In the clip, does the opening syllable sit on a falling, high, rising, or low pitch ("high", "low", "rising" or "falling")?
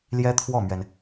high